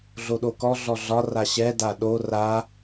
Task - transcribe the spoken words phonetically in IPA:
ɮoɗokɔ ɮɔɮɒ raɕɛ daɗo ra

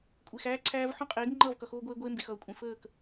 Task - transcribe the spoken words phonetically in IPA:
kʷʼe˨x æː˦ǀʰæː˦v ħõ˦qʼeː˨˦ɡ ŋ͡ǃʌː˦˨vkʌ˨xoː˦ɡʷeː˦ ɡʷeː˦mbe˨xʌː˨ kʷʼẽ˨fəː˦˨k

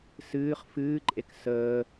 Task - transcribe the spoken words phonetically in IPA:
sɨːχ fɨːǃʼek səː

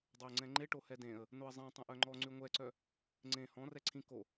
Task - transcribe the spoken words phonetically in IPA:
dˤøə̯ŋ͡ǀɛ̃ŋ͡ǃe ʈohɛdẽə̯ | noə̯zˤɛ̃ tˤɛ̃ʔœŋ͡ǃɔ ŋ͡ǀyŋʷɛǀœ | ŋ͡ǀẽ hɔ̃ rɛǀʰĩ ko

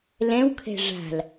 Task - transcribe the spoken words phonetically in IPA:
lɛ̃wkʰɛ̤ ʐa̤l

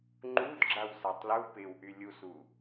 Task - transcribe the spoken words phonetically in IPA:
ŋ͡ǃud ɡ͡ǁawsatˤlu pɪwʔy lʲusu

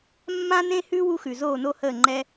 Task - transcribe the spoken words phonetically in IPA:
mːã˥nẽ˥hʉ˥ wu˥xʉ˩ zoː˥˩no˥həː˥˩ ŋ͡ǃɛ˥

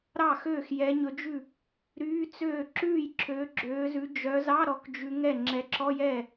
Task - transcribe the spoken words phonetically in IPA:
ɾɑ˥˩ xøː˥˩x jɛ˨˦ɲɵ˨˦d͡ʒʉ˥˩ | ɾyː˧˥˧t͡søː˥˩ ǁʉː˥˩j ǁøː˨˦ɡ͡ǁøː˨˦zʉ˨˦ d͡ʒœ˨˦zɑ˧˥˧ ɾɔ˨˦kd͡ʒʉ˨˦ŋɛ˥˩ ŋ͡ǁɛ˨˦ǁɔ˧˥˧jɛ˥˩

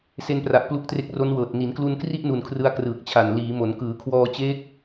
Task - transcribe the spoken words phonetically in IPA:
se˧npra˨˩ʔ plu˦˥k̚tre˦˥k̚ ro˦˥nwɤː˨˩t̚ ni˩˦nklu˧nkri˥˩ʔnu˨˩n kʰrɯ˦˥a̯krɯː˨˩k̚t͡ɕʰa˨˩n liː˩˦mo˩˦n kɯː˩˦kʰwɔː˧t͡ɕeː˦˥k̚

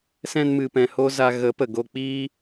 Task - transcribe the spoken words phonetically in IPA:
sɛ̃˧nmɨ˨pɛ̃˨ ho˦za˧ ɣə˨˦pə˨ɡo˧ k͡piː˦

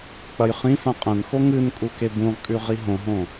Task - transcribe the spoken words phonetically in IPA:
k͡pɐjχĩfã qʼɐ̃nxo ŋɨn kʼukebũʁkʼʉ ʁiɦõɦõ

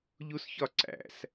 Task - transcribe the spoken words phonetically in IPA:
ʎusçɒǀæ̰s

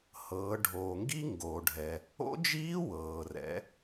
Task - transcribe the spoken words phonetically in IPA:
hɤː˩˧ ɖʱoː˩ŋɡi˦˥ ŋɡoː˩ɖʱɛ˩ | o̰˦˥d͡ʒiː˦˥ wɤː˩rɛ̰˩˧

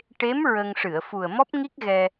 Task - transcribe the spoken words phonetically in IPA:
ʈe˧˥m ɹə˧ŋ ʂɨ˨˩˨ə̯fu˨˩ə̯ mɔ˦˥p̚ŋi˦˥k̚ ɣɛ˧

